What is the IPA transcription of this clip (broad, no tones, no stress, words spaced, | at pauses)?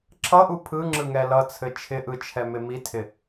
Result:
ǁʰʌʔu pʰɯŋ͡ǁɯŋɛ lʌt͡sʰɘ t͡ʃʰɪʔɯt͡ʃʰɛmɪ mitʰɪ